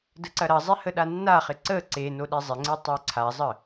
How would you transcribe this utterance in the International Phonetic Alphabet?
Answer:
d ə ǀ ɐ ɾ ɐ zˤ e h ə ɗ a nː a χ ɪ ǀ ə ǀ e n o ɗ e zˤ ɪ ŋ͡ǀ e tˤ e ǀʰ a zˤ ə

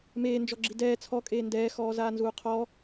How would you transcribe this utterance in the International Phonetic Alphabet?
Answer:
m eː n d͡ʒ ɔ ɡ͡ǁ i d ɛː t͡sʰ ɔ kʼ eː n d ɛː x ɔː z aː n z uː qʰ ɔ

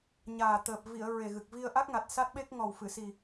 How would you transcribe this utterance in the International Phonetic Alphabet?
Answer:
ɲ aː˨˩ t̪ əː˨˩ p̚ v i˨˩˨ ə̯ ɹ e˨˩ ɣ ɨ˨˩ k̚ v i˧ ə̯ ʔ a˦˥ k̚ ŋ a˨˩ t̚ s a˦˥ t̚ ɓ e˦˥ k̚ ŋ ɔ˨˩ w f ɨ˨˩˨ s i˨˩

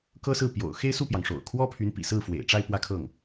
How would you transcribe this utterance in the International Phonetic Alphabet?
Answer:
k ɤ˥ s ɹ̩˥˩ p j o̰˨˩ ʊ̯ x e˥˧ ɪ̯ s u˥˩ p j ɑ˩ ŋ ʂ o̰˨˩ ʊ̯ kʰ w ɔ˥ pʰ y˧˥ n p ḭ˨˩ s ɹ̩˥˩ f w ḛ˨˩ ɪ̯ ʈ͡ʂ a˥˧ ɪ̯ p w ä˥˧ kʰ ɤ˥˩ ŋ

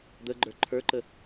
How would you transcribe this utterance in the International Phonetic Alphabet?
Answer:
d̪ ə ɡ͡ǃ ə˞ ǃʰ ə˞ ǃ ə

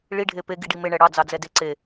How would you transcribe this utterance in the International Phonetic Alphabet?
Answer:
ɭ i ɖʱ e p e ɡ i ɖ i m e ɳ ɛ ɽ ɑ d͡z ɑ d͡z ɛ d e ǀ e

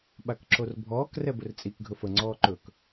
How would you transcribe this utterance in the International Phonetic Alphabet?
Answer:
ɓ a k ǁ o r bʱ ɔː k r ɛ b ɵ r t͡sʼ i k ɡʱ ɵ f ə ŋ͡ǀ ɔː ǃ ɵ k

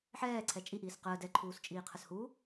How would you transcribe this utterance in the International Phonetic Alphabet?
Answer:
ħ ɛː ǀʰ ɛ t͡ʃʼ i ʔ iː s q əː d ɛ ǃʰ uː s t͡ʃʼ iː qʰ ə s h u

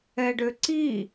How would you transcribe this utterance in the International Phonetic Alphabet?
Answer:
ɛ ɖ ø ǀ i

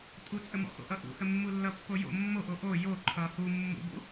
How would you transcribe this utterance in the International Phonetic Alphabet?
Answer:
tʼ u t͡sʼ ə m ɔ̰ x o̰ ʔ ʌ ʔ ṵ h ə mː u lː ʌ pː o j o̰ mː o ʔ o ʔ o j o ǃʰ ʌ h u mː ṵ b ṵ

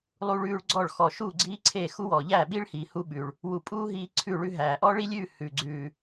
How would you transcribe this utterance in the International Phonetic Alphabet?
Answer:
lˠ u˥ ɭ ʉː˥ ɭ ɡ͡ǀ ɔ˥˧ ɭ x ɔ˧ ʃ u˥˧ ɡ͡ǀ iː˥ ǀʰ e˥˧ x u˥ w ɔː˧ ʎ æː˥˧ ɓ iː˥ ɭ h iː˧ h u˥ ɓ ʉ˧ ɭ | w u˧ pʼ uː˥ ɦ iː˥ ǀʰ ʉ˥˧ ɭ ʉ˥ ɦ æː˧ ʔ ɔ˥ ɭ i˥ lʲ ʉː˥˧ h ʉː˧ ɡ͡ǀ ʉː˧

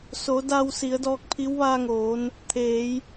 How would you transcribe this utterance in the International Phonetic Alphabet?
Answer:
s o˩˧ d aː˧ w s i˩˧ ə̯ d ɔː˧ k̚ pʰ i˧˥ w ʋ aː˧ ŋ oː˩˧ n | t̪ʰ eː˩˧ j

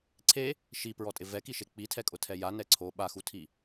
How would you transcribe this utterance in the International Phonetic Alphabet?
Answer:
ǀʰ e | ʃ i p ɹ ɔ tʼ ɪ v ɛ k i ʃ e k͡p i tʰ ɛ kʼ ʊ tʰ ɛ j a n ɛ ǀʰ o ɓ a x u tʰ i

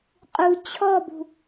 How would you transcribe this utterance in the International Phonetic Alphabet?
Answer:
qʼ u t͡ɕʰ ɔ b ṳ

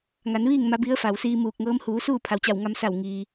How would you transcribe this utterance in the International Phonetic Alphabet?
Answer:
ŋ a˩˧ n ʋ iː˥˨ ŋ m a˧˥ b i˧˥ ə̯ f a˩ w s iː˧ m uː˧˩ k̚ ŋ ɤː˧˥ m h uː˩˧ s uː˥˨ pʰ a˩ w t͡ɕ a˧˩ w ŋ a˧ m s a˧˩ w ŋ iː˩

